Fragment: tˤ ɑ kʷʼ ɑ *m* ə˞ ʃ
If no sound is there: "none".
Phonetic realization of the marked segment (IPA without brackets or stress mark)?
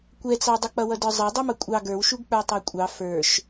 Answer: f